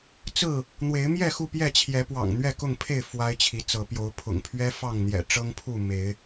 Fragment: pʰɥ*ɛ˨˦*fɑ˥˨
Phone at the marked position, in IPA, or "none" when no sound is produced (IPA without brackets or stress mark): ɛ˦